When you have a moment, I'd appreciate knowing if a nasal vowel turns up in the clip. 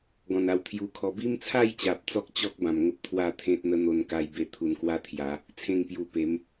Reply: yes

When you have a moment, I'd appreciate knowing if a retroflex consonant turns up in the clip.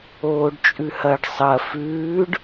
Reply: yes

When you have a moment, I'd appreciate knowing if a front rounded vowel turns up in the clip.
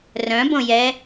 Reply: yes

